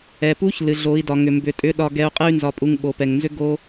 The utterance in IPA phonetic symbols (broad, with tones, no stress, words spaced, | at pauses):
ɛ˩pu˧˥ç lɨ˩˧ ɮo˩˧i̯dɒ˩ŋʏ˩ mbʏ˩˧tʼʏ˧˥ ɗɒ˧ɡɛ˧u̯ qʼɨ˥y̯nzɒ˧pʼu˧ŋ ɓo˩˧pɛ˩ŋnzʏ˥ ɡo˥